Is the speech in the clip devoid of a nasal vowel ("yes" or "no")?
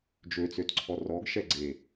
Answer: yes